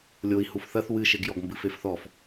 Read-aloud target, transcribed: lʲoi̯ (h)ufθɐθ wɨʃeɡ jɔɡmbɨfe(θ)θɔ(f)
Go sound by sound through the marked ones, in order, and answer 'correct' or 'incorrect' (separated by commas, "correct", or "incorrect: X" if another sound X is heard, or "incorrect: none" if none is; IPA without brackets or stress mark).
correct, incorrect: f, correct